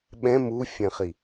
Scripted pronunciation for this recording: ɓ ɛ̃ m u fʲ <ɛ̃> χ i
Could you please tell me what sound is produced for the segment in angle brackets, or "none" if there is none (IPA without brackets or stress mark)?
ɛ̃